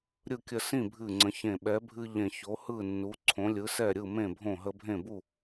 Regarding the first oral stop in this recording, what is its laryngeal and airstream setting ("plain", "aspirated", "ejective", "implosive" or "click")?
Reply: plain